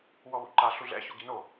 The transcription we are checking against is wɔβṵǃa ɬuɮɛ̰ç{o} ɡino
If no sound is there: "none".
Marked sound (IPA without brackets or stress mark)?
o